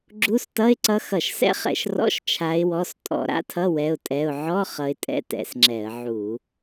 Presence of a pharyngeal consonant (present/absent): present